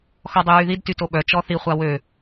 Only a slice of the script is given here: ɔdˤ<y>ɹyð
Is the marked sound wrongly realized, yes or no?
no